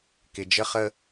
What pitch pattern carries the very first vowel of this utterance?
low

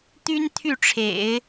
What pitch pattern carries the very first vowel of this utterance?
high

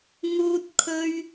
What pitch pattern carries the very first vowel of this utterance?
high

